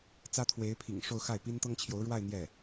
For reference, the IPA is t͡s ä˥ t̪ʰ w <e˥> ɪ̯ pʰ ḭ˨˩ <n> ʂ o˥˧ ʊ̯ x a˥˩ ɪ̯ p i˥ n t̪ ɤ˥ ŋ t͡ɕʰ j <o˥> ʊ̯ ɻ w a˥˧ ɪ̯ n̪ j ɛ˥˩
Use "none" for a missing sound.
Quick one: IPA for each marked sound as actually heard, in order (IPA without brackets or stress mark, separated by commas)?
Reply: e˧˥, ŋ, o˧˥